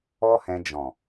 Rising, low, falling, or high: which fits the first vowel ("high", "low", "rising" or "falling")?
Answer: high